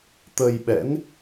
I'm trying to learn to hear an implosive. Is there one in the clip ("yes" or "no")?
yes